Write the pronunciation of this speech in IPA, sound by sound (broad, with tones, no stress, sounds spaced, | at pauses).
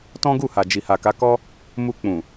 t ɔ̃˦ ɡ u˦˨ h a˨ d͡ʒ i˨ h a˨ k a˨˦ k ɔ˦ | m u˧ k͡p ũ˨